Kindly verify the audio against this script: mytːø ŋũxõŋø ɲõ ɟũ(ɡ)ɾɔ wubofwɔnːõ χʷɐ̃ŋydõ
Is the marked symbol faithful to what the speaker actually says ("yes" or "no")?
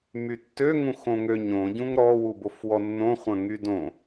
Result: no